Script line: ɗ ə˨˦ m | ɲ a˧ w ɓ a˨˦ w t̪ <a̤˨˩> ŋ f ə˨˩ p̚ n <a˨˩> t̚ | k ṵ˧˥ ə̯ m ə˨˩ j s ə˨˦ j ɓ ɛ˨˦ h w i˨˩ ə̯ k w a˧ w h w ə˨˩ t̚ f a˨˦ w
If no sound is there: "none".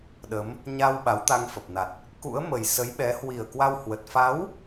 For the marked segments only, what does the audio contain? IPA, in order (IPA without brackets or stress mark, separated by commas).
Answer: a˧, a˨˩